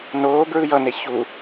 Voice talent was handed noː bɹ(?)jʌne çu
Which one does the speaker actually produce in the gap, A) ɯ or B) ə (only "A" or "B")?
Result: A